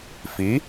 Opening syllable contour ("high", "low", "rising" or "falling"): rising